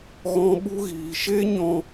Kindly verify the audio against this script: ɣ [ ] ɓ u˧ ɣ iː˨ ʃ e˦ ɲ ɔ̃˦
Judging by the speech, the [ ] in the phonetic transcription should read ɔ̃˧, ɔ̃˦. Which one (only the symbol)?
ɔ̃˧